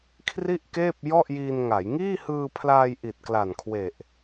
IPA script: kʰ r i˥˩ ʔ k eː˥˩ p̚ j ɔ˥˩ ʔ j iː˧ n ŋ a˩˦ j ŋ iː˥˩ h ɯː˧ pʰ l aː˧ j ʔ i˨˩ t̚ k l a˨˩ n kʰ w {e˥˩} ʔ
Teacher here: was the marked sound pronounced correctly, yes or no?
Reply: no